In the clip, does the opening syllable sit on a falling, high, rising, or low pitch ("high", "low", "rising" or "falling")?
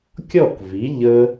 falling